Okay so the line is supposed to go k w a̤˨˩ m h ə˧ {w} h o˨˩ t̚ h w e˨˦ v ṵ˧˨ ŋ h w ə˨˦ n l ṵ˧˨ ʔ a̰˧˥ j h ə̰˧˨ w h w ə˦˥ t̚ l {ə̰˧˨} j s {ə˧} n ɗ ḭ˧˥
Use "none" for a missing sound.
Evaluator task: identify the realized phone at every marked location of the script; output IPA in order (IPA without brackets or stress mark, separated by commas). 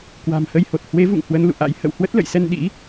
j, ə̰˧˨, ɛ˧